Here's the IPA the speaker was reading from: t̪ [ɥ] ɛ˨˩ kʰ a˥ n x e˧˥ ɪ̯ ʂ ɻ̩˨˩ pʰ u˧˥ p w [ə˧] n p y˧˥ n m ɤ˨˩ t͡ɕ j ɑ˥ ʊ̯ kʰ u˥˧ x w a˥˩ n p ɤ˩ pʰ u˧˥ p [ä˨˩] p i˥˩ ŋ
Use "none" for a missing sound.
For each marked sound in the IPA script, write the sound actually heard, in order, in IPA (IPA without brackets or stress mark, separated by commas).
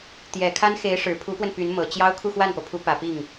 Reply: j, ə˧, ä˨˩